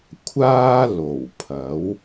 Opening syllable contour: high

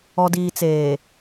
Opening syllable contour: low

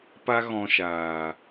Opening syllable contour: high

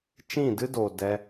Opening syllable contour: falling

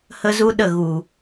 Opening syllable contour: high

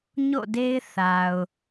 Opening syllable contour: falling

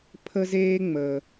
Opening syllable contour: high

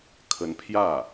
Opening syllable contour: rising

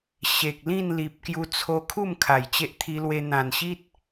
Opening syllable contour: low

